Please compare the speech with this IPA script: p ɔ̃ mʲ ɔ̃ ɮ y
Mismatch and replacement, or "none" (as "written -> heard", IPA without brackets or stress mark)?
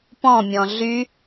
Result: none